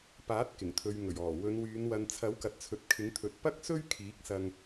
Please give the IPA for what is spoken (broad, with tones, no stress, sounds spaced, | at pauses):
p aː˨˥ t̚ k ɪ˨˩ ŋ t̪ʰ ɵ˨ ɥ ŋ ɵ˨˩ ɥ ɔː˨˩ w ɵ˨˧ n w yː˨˧ n w ɐ˨ n t͡sʰ ɐ˨˥ w k ɐ˨ t̚ t͡sʰ ɵ˨ t̚ kʰ ɪ˨˥ ŋ t̪ʰ ɵ˨˥ t̚ p ɐ˥ k̚ s ɵ˥ ɥ kʰ iː˨˥ k̚ s ɐ˧ ŋ